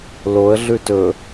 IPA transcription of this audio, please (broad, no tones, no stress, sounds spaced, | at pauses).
l o ə̯ ɮ ʉ t ɵ